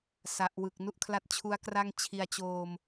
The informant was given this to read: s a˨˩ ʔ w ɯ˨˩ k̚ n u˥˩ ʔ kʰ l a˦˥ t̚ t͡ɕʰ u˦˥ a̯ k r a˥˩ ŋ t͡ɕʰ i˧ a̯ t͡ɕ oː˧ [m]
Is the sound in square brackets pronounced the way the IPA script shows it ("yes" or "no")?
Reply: yes